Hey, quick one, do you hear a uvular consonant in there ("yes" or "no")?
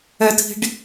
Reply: no